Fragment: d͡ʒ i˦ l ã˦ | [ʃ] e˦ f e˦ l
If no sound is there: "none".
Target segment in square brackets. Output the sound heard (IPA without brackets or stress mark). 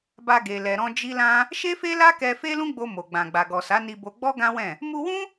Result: ʃ